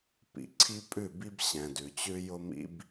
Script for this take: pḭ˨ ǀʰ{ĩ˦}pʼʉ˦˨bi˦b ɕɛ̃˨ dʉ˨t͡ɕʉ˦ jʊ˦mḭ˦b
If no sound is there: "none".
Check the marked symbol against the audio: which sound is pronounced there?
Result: i˦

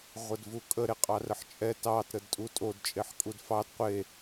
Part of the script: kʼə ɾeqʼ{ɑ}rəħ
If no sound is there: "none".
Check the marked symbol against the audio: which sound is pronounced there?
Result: ɑ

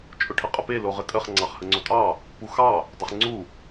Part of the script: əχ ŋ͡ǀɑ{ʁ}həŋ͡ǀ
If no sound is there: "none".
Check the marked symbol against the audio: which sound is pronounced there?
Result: χ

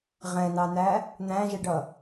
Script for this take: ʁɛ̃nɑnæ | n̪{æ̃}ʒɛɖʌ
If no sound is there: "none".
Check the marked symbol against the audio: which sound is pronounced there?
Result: æ̃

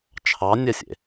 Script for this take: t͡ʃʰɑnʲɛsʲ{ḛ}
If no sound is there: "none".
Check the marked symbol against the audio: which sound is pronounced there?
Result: ḛ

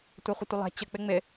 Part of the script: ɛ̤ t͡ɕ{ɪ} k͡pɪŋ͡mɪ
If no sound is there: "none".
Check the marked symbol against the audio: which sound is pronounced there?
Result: ə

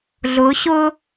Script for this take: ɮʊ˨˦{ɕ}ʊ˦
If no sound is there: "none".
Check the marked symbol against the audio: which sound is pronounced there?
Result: ɕ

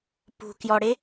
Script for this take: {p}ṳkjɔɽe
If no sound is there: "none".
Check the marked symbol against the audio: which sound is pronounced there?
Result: p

